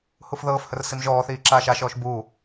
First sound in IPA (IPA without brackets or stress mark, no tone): h